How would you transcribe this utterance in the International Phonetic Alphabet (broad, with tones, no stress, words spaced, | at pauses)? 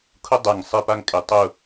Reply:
kʰʊ˥dˤɛ˧˩ŋ sˤɪ˥˧pa˥ŋ kʼɪ˧tˤʊ˥˧